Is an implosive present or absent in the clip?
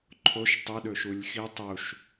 present